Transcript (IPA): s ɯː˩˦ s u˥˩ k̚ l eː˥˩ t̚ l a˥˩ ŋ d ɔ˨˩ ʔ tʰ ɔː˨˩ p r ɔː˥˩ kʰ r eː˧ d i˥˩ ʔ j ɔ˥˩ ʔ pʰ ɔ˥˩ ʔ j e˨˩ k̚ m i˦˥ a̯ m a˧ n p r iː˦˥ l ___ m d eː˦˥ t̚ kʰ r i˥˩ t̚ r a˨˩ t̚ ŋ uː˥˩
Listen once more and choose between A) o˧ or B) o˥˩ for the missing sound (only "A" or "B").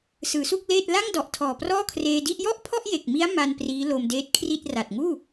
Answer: A